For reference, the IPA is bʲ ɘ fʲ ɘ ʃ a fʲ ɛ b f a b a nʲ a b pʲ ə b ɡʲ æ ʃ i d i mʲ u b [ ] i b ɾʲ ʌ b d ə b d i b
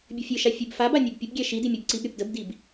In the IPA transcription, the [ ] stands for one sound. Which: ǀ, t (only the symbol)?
ǀ